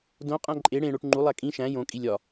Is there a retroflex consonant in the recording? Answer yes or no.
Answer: yes